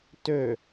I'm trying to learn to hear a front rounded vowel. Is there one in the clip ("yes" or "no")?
yes